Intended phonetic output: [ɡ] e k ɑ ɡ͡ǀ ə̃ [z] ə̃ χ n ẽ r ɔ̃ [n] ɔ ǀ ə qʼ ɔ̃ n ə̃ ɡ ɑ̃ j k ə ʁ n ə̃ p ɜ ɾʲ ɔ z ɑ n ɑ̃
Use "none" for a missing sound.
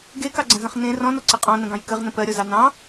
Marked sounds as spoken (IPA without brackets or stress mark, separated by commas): ɡ, z, n